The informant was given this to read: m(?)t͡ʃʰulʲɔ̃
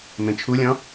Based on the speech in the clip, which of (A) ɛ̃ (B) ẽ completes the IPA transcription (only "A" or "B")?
B